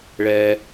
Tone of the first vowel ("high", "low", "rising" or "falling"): high